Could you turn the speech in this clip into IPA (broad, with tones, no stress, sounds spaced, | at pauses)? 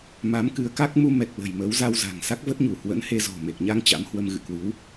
m a˨˦ m k ɨ˨˦ ə̯ k a˦˥ k̚ m u˧ m ɛ˨˩ k̚ l ə̤˨˩ j m ə˨˦ w z a˧ w z a̤˨˩ ŋ s a˦˥ k̚ v ə˦˥ t̚ ɲ u˧˩ h w ə̰˧˥ n h e˧ z ɔ̤˨˩ m e˨˩ k̚ ɲ a˧ ŋ t͡ɕ a̰˧˥ m h w ə˧ m ɣ ɨ̰˧˨ k w ɨ˨˦ w